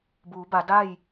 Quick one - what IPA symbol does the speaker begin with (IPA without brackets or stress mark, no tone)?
b